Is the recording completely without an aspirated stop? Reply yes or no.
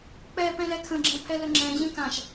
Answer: no